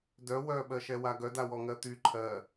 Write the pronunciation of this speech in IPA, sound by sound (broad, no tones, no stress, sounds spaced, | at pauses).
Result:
d œ w œ ɓ ɜ ʃ ɛ w a ɡ œ d a w ɔ ŋ ɜ t̪ y ǃʰ ɜ